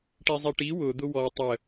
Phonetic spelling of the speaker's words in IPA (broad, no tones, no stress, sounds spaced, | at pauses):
ʈ i zˤ i ʈ i w ʊ d̪ ʊ w ɔ tˤ ə